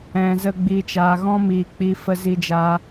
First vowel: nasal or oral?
nasal